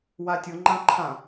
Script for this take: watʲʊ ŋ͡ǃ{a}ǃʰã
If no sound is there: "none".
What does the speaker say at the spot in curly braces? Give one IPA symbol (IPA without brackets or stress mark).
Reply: ã